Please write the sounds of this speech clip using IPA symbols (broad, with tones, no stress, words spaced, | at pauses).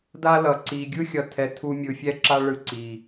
da˦lʌ˨ǀi˨ ɡʲɯ˦xʲʌ˨tʰɛ˨ tʰu˧mʲɯ˨fʲɛ˦ǁa˦ ɭɯ˧ǀi˨